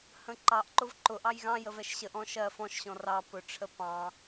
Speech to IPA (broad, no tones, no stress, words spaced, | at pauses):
hə̃ǃɑʔǃʊv ǃʊʔɑj ɣɑ̃jə vɛʃɕəʔɔ̃ ʃɜ fɔ̃ʃɕɔ̃ rɑ pʊʈ͡ʂʰə pɑ̃